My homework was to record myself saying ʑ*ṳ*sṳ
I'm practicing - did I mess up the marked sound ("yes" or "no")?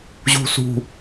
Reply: no